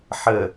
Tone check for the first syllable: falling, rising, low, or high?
low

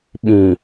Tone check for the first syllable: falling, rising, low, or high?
low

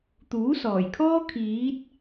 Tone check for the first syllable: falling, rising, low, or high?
rising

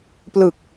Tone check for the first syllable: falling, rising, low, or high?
low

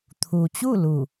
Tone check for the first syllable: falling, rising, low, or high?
low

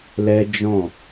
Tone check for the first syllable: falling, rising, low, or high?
high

